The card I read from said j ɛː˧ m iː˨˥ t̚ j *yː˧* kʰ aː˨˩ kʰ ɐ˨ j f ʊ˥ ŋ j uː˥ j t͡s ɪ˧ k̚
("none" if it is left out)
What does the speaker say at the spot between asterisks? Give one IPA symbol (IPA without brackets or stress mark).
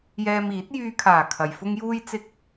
yː˧